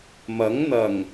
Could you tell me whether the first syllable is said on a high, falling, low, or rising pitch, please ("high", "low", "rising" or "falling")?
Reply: rising